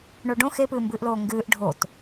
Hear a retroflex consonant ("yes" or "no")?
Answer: yes